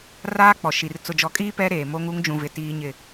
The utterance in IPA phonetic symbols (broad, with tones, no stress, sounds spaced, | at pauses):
r aː˦ k͡p ɔ˨ ʃ i˨ r t͡s ʊ˨ d͡ʒ ɔ˨ kʼ iː˦ p ɛ˦ ɾ eː˨ m o˦ ŋ u˦ ŋ d͡ʒ ũ˨ v ɪ˨ t iː˦ ɲ ɪ˦˨